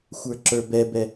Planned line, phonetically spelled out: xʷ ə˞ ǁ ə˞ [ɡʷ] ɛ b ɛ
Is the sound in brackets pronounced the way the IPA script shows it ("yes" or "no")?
no